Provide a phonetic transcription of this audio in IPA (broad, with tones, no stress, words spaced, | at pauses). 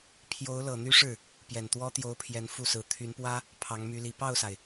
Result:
pʰjo˧˥ʊ̯lɤ˨˩n̪y˥ʂɻ̩˥˩ | pjɛ˨˩nt̪wɔ˥t̪jo˧˥ʊ̯pʰjɛ˧˥n fu˥˩sɹ̩˧˥ t̪ʰy˧˥npwä˥ | pʰɑ˧˥ŋmy˧˥li˧˥ pɑ˥˩ʊ̯sa˩ɪ̯